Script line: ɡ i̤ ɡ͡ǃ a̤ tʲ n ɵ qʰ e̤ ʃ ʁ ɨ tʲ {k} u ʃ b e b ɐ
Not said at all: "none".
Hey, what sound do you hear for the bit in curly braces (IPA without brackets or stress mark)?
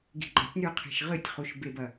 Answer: χ